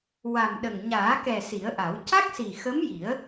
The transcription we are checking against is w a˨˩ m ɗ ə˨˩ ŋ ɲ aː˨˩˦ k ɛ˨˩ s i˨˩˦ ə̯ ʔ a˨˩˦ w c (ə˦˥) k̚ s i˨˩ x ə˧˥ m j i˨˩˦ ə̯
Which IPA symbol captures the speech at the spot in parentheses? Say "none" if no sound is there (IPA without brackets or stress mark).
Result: a˦˥